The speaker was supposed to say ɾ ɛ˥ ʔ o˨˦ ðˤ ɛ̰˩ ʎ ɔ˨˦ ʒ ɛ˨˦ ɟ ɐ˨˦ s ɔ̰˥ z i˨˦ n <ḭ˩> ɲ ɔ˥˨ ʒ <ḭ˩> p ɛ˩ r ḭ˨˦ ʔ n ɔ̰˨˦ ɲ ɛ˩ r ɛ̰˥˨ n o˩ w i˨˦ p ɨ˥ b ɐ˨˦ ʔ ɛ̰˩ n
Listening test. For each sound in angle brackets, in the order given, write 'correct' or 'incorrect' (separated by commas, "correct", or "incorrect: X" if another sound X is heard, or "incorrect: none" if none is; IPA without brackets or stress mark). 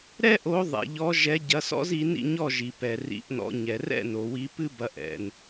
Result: incorrect: ḭ˥˨, incorrect: i˩